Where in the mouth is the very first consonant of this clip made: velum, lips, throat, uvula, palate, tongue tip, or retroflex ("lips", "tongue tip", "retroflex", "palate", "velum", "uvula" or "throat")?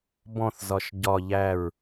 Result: lips